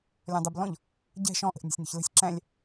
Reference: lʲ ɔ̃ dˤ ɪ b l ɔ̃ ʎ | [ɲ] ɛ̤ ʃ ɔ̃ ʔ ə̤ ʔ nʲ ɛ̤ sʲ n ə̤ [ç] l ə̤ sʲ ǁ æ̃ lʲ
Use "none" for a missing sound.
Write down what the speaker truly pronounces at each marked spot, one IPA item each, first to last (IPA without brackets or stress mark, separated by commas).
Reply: ɟ, ç